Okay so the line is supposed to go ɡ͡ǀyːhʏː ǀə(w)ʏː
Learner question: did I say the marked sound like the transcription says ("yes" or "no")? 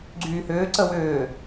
yes